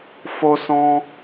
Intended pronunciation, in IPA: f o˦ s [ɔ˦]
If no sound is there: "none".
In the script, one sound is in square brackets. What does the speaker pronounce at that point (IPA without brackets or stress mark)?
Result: ɔ̃˦